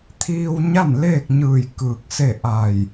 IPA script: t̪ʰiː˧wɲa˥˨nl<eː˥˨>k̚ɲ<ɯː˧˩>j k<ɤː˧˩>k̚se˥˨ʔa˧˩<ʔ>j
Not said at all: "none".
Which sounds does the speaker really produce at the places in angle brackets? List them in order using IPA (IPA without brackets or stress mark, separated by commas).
eː˥˨, ɯː˧˩, ɯː˧˩, none